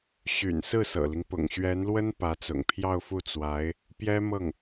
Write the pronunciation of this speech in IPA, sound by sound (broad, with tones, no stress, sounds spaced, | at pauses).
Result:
ɕ y̰˨˩ n s ɹ̩˥˩ s ɤ̰˨˩ l i˦ ŋ p ʊ̰˨˩ ŋ ɕ ɥ ɛ˧˥ n l w ə˥ n p ä˧˥ t͡s ʊ̰˨˩ ŋ pʰ j ɑ˥˧ ʊ̯ f u˥˩ t͡s w a˧˥ ɪ̯ | p j ɛ˥ m ɤ˥˩ ŋ